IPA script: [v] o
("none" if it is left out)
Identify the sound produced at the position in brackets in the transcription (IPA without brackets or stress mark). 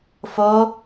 f